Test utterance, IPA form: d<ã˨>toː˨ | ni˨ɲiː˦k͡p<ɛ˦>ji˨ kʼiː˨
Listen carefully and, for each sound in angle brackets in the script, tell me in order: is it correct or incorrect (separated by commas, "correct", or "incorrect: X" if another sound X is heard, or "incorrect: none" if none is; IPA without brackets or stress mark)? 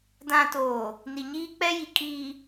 correct, correct